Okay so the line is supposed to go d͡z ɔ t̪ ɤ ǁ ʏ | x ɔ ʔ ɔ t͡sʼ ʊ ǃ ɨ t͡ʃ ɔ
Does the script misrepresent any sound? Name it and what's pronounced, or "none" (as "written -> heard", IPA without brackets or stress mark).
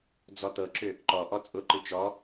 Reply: x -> ǃ